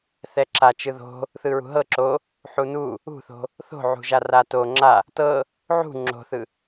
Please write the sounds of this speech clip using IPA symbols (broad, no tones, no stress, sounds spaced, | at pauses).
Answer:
θ ɛ ǁ a t͡ʃ ɯ ð o̤ | θ ɯ ɹ ṳ ɦ ɤ ǁ o | ħ u n u | ṳ θ o̤ | θ o̤ ʕ ṳ ʒ a r a t o ŋ͡ǁ a | t ɤ | ʕ ṳ ŋ͡ǁ o̤ θ ɯ